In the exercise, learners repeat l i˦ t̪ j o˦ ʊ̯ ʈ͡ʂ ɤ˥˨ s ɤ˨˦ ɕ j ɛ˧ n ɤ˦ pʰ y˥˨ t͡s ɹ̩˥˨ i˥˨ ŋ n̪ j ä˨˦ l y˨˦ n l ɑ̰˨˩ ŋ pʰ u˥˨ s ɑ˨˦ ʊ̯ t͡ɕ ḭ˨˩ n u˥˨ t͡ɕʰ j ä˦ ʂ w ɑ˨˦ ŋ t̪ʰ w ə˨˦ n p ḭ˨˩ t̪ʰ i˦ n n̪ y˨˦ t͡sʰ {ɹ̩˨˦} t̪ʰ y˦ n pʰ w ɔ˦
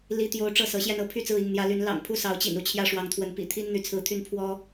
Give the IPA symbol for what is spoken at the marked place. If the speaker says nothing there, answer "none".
ɹ̩˨˦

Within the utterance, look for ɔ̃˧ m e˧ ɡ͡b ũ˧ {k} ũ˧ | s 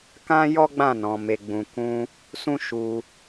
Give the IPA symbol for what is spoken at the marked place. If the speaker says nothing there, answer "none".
k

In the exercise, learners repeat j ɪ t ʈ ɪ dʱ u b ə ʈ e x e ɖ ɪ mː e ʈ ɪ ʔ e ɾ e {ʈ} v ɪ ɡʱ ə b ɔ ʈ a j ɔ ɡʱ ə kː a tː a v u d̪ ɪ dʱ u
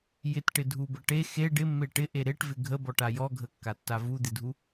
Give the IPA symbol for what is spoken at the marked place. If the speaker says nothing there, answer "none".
ʈ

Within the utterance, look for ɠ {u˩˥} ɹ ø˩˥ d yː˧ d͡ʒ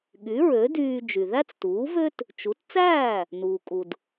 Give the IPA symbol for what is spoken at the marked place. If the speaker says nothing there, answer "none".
y˩˥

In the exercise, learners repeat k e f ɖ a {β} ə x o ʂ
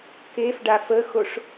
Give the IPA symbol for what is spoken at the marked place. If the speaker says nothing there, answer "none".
f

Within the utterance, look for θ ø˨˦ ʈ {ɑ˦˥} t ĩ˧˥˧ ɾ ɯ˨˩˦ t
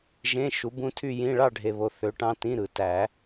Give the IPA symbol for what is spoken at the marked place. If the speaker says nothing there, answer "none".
ɑ̃˦˥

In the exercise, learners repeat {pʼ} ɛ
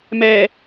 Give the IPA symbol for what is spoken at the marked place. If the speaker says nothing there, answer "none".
m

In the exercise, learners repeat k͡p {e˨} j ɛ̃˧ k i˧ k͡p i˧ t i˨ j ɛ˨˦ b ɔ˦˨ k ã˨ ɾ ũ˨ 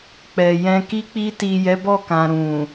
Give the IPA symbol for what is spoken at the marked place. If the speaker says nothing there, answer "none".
ɛ˨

